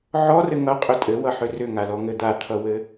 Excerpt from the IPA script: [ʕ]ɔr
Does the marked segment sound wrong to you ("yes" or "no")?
no